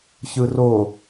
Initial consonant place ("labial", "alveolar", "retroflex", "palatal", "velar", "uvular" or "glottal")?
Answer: palatal